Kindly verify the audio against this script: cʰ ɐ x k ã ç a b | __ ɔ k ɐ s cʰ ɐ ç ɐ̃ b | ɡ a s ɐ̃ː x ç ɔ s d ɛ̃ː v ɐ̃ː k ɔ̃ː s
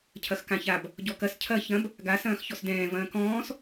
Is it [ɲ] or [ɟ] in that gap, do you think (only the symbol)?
ɟ